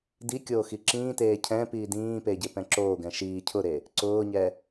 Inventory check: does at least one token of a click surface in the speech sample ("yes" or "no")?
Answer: yes